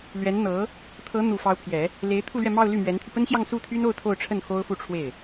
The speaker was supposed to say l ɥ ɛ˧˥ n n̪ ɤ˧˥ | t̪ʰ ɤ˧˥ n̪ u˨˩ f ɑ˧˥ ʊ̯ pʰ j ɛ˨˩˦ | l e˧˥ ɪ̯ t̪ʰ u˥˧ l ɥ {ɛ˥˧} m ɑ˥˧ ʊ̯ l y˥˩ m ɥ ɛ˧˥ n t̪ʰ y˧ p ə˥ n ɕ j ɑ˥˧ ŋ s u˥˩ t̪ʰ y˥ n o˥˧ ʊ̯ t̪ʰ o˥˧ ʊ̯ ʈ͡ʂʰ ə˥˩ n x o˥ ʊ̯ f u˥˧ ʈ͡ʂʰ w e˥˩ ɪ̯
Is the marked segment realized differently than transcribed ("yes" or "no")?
no